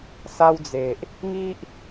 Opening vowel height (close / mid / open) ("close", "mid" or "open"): open